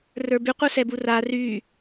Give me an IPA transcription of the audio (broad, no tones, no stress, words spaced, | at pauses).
rə˞by qʷə˞sɛbura ry